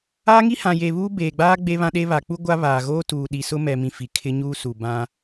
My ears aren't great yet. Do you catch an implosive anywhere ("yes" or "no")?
yes